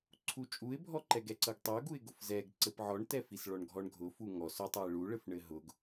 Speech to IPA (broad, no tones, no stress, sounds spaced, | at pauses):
ǀʰ u t͡ʃʼ u ɪ̯ bʱ ɔ ǃ ɛ ɡ ɛ ǀ ɤ ɡ tˤ ɤ ʊ̯ ɡ u ɪ̯ ɡ ʊ f z ɛ ɡ ǀ ɘ p ʕ ɔ ɳ t ɛ f i s ɭ ɔ ɳ ɡʱ ɔ ɳ ɡʱ ʊ f u ŋ ɔ s ʊ tˤ u ɪ̯ ɭ u ɭ ɘ f ɳ ɘ ɦ ʊ ɡ